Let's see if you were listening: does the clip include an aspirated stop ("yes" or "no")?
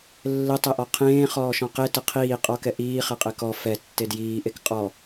yes